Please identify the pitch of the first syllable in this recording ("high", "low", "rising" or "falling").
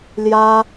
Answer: high